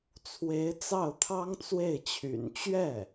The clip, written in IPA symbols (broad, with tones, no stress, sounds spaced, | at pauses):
t͡sʰ w e˧˥ ɪ̯ t͡s ɑ˥˩ ʊ̯ t̪ʰ ɑ˥ ŋ t͡s w e˥˩ ɪ̯ t͡ɕʰ y̰˨˩ n t͡ɕ ɥ ɛ˥˩